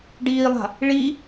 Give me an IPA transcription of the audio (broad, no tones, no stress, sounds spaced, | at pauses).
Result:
ɖ iː lˠ a̤ | ɭ i